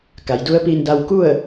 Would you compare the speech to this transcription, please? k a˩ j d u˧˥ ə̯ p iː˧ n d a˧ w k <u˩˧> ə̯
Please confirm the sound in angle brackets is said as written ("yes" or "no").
no